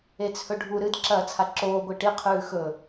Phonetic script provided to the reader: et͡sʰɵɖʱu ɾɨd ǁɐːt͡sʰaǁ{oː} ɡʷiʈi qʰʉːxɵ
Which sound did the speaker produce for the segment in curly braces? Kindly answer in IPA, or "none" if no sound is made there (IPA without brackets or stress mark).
oː